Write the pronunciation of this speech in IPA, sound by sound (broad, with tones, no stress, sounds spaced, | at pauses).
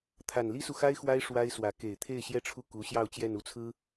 t̪ʰ a˨˩ n l i˥ s u˨ x a˥ ɪ̯ x w a˥ ɪ̯ ʂ w a˥ ɪ̯ s w ä˧˥ k e˨˩ ɪ̯ t̪ʰ e˥˩ ɪ̯ ɕ j ɛ˥ ʈ͡ʂʰ u˥˩ k u˧˥ ɕ j ɑ˥˧ ʊ̯ t͡ɕ j ɛ˥˧ n u˥˩ t͡sʰ ɹ̩˥